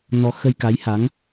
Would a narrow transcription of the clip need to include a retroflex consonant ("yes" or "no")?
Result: no